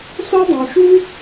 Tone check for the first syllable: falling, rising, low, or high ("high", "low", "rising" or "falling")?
high